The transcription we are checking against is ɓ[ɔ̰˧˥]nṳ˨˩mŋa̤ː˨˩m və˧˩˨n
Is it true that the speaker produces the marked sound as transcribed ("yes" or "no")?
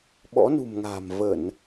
yes